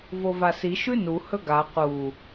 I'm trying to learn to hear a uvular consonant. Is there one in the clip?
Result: yes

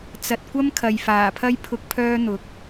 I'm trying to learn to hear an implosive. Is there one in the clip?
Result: no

